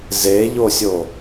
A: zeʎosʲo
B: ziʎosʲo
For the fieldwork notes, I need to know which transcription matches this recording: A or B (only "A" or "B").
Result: A